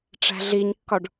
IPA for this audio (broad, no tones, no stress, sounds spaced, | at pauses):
ʈ͡ʂ æ̤ ɮ i ɲ kː ɒ ɖ